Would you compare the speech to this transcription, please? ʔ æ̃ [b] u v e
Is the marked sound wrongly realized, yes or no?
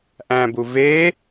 no